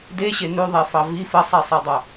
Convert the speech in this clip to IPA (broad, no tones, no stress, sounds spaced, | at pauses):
d e ɕ e n ʉ ðˤ e f ɑ v i f ə sˤ i sˤ e dˤ o